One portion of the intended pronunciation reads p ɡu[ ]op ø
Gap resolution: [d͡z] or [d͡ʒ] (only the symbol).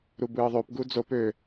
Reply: d͡z